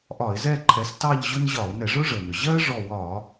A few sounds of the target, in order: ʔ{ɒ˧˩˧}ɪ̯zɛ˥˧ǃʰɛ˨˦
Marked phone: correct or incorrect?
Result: correct